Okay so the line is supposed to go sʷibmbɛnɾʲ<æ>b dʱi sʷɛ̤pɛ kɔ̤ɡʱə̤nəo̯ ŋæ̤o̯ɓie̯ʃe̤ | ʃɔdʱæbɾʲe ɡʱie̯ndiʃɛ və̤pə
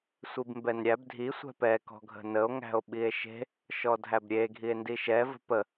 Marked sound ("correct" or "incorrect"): correct